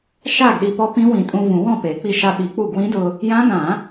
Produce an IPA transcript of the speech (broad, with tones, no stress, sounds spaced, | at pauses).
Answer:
ʃ a˥˩ ɡ ɗ i˧ p ɔ˧˥ p ĩ˧˥ w ĩ˨˩˦ tʼ ũ˧ v ũ˨˩˦ w ɔ̃˥˩ p e˨˩˦ k͡p i˧ ʃ a˧ ɓ i˨˩˦ k͡p u˥˩ ɡ w ĩ˧˥ d ʊ˧ | j ã˧˥ ɡ ã˨˩˦